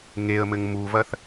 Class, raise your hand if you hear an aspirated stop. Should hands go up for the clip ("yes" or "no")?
no